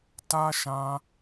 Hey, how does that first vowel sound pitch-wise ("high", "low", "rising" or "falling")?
high